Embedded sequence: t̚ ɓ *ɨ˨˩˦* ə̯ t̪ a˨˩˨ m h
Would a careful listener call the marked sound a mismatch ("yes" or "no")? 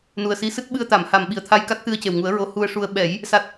yes